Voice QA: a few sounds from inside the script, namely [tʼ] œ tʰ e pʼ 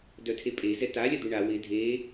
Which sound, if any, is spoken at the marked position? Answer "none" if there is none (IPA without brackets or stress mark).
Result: d